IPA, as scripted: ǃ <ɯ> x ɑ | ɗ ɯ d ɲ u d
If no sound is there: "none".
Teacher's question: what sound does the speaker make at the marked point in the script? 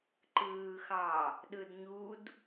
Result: ɯː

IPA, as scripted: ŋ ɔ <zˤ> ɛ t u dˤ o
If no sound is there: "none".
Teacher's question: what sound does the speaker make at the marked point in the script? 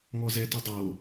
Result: z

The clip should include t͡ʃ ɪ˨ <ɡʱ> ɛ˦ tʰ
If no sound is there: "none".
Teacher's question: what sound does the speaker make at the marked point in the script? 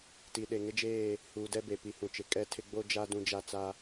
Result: kʼ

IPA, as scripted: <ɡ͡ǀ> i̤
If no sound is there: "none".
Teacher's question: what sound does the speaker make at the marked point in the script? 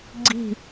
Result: ɡ͡ǀ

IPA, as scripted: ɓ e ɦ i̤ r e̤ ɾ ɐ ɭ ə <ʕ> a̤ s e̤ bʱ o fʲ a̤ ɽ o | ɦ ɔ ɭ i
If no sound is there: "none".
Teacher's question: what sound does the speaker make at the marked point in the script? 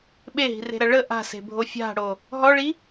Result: ʔ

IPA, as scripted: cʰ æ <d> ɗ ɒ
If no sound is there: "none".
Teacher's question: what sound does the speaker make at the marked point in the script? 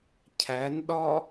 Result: n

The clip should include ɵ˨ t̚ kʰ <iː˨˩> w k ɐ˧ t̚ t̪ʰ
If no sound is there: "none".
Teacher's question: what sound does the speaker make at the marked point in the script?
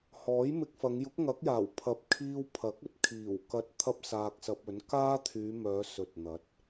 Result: iː˨˩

